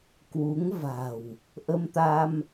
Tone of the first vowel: rising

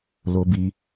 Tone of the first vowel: high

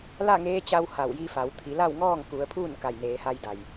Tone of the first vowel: falling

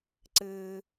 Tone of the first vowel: low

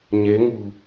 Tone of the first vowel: rising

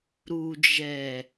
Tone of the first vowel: low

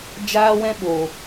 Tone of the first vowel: high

